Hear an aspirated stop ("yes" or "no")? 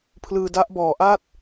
yes